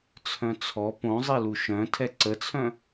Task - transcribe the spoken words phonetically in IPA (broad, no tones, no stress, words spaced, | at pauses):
t͡sʰœ̃t͡sʰɔ põzˤilu ʃœ̃ tʰɛǀət͡sʰœ̃